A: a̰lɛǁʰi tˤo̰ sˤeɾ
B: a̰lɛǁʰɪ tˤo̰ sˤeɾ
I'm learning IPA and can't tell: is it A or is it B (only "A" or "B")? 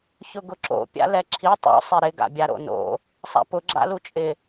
A